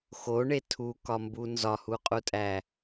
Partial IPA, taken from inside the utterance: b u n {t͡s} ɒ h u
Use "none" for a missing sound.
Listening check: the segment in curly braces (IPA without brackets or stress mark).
z